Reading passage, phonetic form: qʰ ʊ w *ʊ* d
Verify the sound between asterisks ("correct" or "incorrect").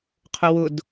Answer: correct